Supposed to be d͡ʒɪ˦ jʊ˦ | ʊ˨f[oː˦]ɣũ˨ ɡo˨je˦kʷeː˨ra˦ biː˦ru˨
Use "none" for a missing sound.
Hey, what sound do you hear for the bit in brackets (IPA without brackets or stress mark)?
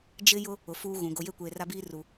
uː˦